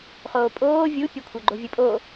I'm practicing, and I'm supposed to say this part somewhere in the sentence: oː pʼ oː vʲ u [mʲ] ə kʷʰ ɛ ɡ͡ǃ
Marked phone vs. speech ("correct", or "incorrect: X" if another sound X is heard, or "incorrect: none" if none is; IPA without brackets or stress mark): incorrect: pʲ